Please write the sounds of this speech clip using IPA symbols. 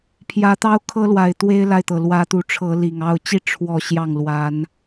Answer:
pʰjä˨˦t̪ɑ˦ʊ̯kʰɤ˦lwa˨˩ɪ̯ t̪we˦ɪ̯la˨ɪ̯t̪ɤ˩ lwä˨˦t̪u˨˦ʈ͡ʂʰɤ˨˦ li˨˩ŋɑ˥˨ʊ̯ t͡ɕi˦ ʈ͡ʂʰwɔ˥˨ ɕjɑ˥˨ŋ lwa˨˦n

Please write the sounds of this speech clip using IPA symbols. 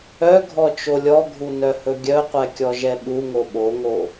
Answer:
œɡʱɔ t͡ʃolʲɔɡʱu nœhɵɡʲœqʷɛ kʲɔʒɛɓuŋo ɓoŋo

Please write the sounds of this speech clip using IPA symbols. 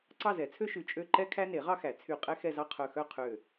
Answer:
ǀɑ˥˧zɛ˨˩˦t͡sʰø˥ʃʉ˧˩ t͡ʃʼø˥˧ǃɛ˥ kʰæ˥ne˨˩˦ʁɑ˥xæ˨˩˦ t͡sʰy˧˩qʼɛ˥ xɛ˥˧zɑ˥qʰœ˧˩ xœ˥˧qʰø˧˩

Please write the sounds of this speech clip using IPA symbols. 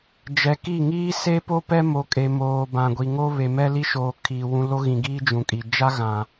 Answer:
d͡ʒɛ˨ki˦˨ ŋiː˦se˦po˦ pɛ˦mo˨ kʼe˨moː˨ bã˨ɡʷi˨ ŋo˦ βe˨mɛ˦li˦ʃoː˨ kʰiː˨wũ˦ lo˦ɣĩ˨ɡiː˦ d͡ʒũ˨kʼi˨ d͡ʒa˦ɣã˨

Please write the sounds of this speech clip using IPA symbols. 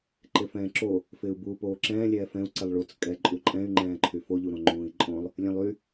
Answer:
ǃɪfɛ̃ːǁo | fɪːu̯buːpoːǁɛ̃ː lʲɛːfɛ̃u̯ ǀɪlˠɭut͡s kʼɛ ǃʼuǃʼɛ̃y̯ ŋ͡ǃɛ̃ːǃʰyfo ʎuɾõŋ͡ǃũːi̯ǃʼõlˠ | lʲɛ̃lˠy

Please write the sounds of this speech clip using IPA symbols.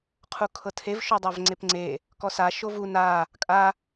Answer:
qʰukʰɤtʰev ʃodˤavŋ͡ǀepŋ͡ǀe | kɔsa ʃovu na | kʼa

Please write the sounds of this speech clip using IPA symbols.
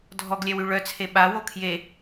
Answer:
dʱɔɡlʲɛwy ɭœt͡sʰe ɓawo kʰje

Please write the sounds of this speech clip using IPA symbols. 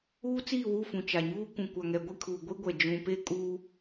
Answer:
uː˦t͡siː˦˨wu˦˨fũ˨ t͡ʃa˨ɲuː˦ kʷũ˨kʷa˨ŋɛ˨ ɡʷi˦˨kʰuː˨ ɡʷi˦ɡʷɛ˨ d͡ʒũ˨pe˦ kʼuː˦

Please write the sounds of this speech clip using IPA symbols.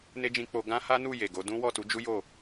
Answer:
ne˦d͡ʒĩ˧k͡po˧ ɡã˦ha˦nu˦˨ je˨ɡo˨˦dũ˦ wɔ˦˨tu˨˦d͡ʒu˦ jo˦˨

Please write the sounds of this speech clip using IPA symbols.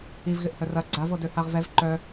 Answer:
ivɣɪʔhœ rɐ ɡ͡ǀavodø haʁ vɛv ǃœ

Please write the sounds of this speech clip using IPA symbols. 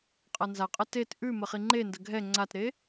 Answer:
qʼanzaqʼə tet ʔʉmə χiŋ͡ǃendə ɡʱɛ ŋ͡ǀatɾe

